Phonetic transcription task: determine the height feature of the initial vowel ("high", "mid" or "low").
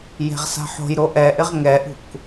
mid